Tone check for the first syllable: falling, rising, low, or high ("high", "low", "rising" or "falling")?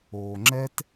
low